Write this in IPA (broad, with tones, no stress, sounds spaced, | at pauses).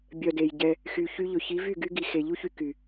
bʲ œ˨ d e˨ j ɟ ɛ˧ | x y˨ ç y˦ ʎ ɵ˨ ç i˨˦ v y˦˨ ɡ y˦ ɡ i˨ x e˨ ʎ u˦ ç y˧ k y˨